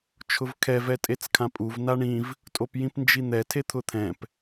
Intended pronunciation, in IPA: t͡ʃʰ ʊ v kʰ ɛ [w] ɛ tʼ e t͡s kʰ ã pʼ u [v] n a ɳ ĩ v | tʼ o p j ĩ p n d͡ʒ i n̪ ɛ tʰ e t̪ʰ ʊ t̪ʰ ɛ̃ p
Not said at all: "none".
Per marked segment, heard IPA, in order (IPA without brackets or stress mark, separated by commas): v, v